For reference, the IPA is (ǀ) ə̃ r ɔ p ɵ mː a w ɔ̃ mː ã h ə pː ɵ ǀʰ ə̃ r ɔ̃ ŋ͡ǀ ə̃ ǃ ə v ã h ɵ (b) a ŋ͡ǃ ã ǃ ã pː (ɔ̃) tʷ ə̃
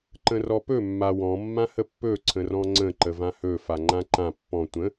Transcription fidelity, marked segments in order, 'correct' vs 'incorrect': incorrect: ǃ, incorrect: f, correct

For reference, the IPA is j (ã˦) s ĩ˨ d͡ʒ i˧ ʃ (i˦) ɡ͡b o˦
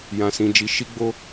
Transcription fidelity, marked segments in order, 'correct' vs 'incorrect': incorrect: ã˨, correct

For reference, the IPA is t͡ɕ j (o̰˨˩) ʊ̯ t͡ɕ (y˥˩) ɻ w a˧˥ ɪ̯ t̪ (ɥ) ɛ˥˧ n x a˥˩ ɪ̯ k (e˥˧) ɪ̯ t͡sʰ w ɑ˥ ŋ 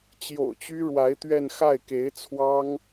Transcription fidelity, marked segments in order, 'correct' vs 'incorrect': correct, incorrect: y˥, correct, incorrect: e˧˥

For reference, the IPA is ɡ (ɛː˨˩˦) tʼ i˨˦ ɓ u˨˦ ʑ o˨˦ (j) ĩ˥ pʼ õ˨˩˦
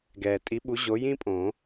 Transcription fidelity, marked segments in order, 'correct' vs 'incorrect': incorrect: ɛː˩, correct

